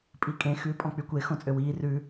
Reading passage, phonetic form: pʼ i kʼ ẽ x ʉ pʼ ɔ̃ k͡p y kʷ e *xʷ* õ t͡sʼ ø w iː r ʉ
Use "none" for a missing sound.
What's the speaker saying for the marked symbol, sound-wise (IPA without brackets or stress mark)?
x